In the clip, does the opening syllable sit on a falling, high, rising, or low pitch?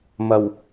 low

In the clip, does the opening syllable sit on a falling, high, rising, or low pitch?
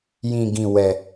low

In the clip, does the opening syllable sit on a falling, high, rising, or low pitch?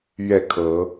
falling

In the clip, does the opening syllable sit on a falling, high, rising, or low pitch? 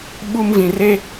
high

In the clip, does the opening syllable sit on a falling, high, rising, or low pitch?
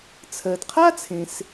low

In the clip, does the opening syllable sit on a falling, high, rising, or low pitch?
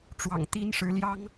low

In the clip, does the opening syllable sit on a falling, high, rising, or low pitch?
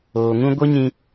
low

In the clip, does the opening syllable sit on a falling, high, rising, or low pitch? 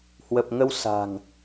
low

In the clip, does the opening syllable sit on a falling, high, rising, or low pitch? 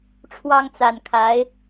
high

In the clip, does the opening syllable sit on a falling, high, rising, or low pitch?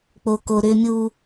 low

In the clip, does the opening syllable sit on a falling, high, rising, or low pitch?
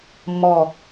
low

